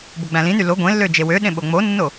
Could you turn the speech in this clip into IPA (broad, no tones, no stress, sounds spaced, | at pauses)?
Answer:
b o ɡ͡b æ̃ l ĩ n y l o ɡʷ ẽ lː ø d͡ʒ e w ø ɗ ẽ ɓ o ŋ͡m o nː o